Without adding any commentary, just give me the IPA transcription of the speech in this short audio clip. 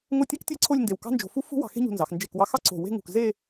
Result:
ŋo˥˧tʲa˥ktʲe˥ǀʰo˥˧lʲ nde˧˩wkɑ̤˥nd͡ʒo̤˧fu˥ fṳ˥ wɑ̤˧xe̤˥ɲṳ˧nzɑ˩˧x nd͡ʒe˧˩kwɑ˧xɑ˥ ǀo̤˧˩ we̤˥˧ŋṳ˧˩k ze˥˧

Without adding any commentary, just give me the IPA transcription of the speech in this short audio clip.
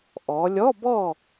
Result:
ʔɔ˩˧lʲɔ˧˥˧bɔ˥˨

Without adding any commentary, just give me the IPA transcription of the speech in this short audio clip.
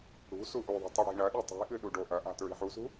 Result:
ɽṳ suʔuðˤi̤ tˤɨɽi̤ɳɐɗi tˤi̤ʔɨ ɗuɖoʔɐʔa̤ tɹi̤ħusṳ

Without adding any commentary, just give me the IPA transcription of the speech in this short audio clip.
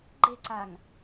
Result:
ɡ͡ǃe̤ǀaŋ

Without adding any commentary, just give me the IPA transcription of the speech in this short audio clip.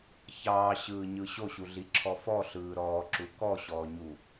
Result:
çɑːɕɯːɲɯ ɕoɕuɮiǁʰɔ fɔɬɯː ɾɔːǁu kɔɕɔːɲu

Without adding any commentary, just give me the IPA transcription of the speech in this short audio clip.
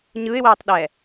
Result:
ɲɯɪ̯wɛːtˤɗɛː

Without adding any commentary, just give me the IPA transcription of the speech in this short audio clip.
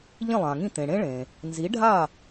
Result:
ʎĩ˥˩lˠã˩ŋĩ˥˩t̪ẽ˩ ɽẽ˥ɭẽ˩ | nzi˩˥ɖʱa˥˩

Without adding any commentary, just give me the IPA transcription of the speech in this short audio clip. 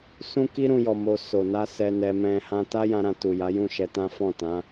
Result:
sũ˦ki˦ ɾũ˦jɔ˧ mo˧ so˨na˧ sɛ˧nɛ˧ mɛ̃˧ hã˧ta˦jã˧ɾã˧ tu˨ja˨˦jũ˦˨ ʃɛ˧tã˦ fɔ̃˦˨tã˨˦

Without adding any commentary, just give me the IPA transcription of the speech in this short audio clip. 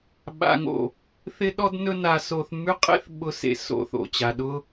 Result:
ɓa̰˧ŋo̰˨ | θɪ˦ɗɔ˦dnɵ˦ na˧so˧θ mʉ˦qʼḛ˦θ ɓʊ˦sḛ˧ so̰˨θo̰˨t͡ɕa˨ ɗʊ˧

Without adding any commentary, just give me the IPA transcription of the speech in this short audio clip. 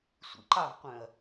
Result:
sʷḭǃɑvqʷœ̃ɐ̯

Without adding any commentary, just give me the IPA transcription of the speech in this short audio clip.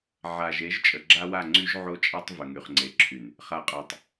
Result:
ʕa˨ʒe˨˦ʒ t͡ʃʼə˨ɡ͡ǁa˦wa˦˨ ŋ͡ǀy˦ʒʕo˦t͡ʃʼa˦tˤ və˨ŋy˨χŋ͡ǀe˨ǁʰy˨n | χa˨qʼa˨tˤ

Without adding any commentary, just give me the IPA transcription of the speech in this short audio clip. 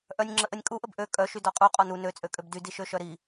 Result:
ʔœnʲ ŋ͡ǁəʔənʲ kʼuʔəb ʔø kʼœʃy dɔqʼu qʼɔnu nøt͡sʼøkʼøb dy diʃøʃœɾi

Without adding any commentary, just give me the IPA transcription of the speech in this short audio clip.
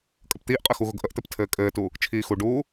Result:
kʼəpt̪iːʔqʼɘ xuɣʊɡʔəʔt̪ɘp tʰɘːkʼɘːtu | t͡ʃʰiːxuɖuː

